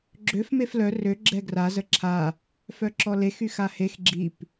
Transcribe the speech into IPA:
ɡ͡ǁ ø f m e f l œ r ø ɡ͡ǁ ɛ ɡ r a z ə ǁʰ a | f œ ǁ ɔ l e x y x a h e x ɡ͡ǁ i p

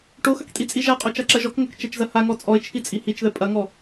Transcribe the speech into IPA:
ʈ o x ɐ k tʼ i t͡sʼ i ʒ a qʼ o t͡ʃ a ǁ ɐ ʒ ɔ k ŋ ɐ k t͡ʃ ɛ t͡ʃ z ɐ h a ŋ ɔ t͡sʼ ɔ ɪ̯ t͡ʃʰ i t͡sʼ i h i t͡ʃ ð ɛ pʼ ɐ ŋ ɔ

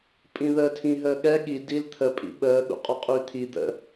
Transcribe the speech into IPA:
pʼ ĩ ð əː tʰ ĩ ɦ əː ɠ ɛ ɠ i d i l t̪ʰ ə pʼ ḭ ɓ əː ɠ ṵ qʼ ɔ qʼ yː t̪ʰ i d̪ ə̰

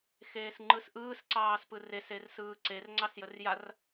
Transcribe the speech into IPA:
x eː s ŋ͡ǃ ɯ s ʔ ɯː s ǀ ɑː s p ɯ r e s e r s ɯː ǀ e r ŋ͡ǀ ɑ s j ə r j a r

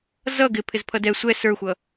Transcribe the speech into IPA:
z ʌ ɡ ɪ pʰ ɪ z pʰ ʌ d ɛ sʷ ɛ s ə˞ xʷ ʌ

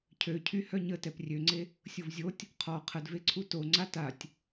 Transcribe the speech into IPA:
cʰ ø cʰ y h œ ɲ ə t ɛ p rʲ ø ŋ͡ǀ e | sʲ o v zʲ o tʲ | qʰ ɔ qʰ ə d v e ǀʰ u t o ŋ͡ǀ a t a tʲ

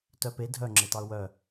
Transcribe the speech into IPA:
t œ p e dʱ œ ŋ͡ǁ e t ɑ ʊ̯ w œ

